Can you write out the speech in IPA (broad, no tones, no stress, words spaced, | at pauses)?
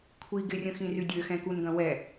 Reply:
kʷʰi ɡɪrʲə̃xĩry dʲøxɛ̃kunɡɐ̃ wɛ